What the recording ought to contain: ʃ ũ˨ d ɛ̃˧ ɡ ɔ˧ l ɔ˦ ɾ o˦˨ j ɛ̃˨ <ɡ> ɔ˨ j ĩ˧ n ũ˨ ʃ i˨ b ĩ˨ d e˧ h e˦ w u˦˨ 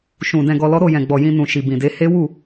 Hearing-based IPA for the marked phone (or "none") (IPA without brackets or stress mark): ɡ͡b